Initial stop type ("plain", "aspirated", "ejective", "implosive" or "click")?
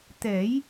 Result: plain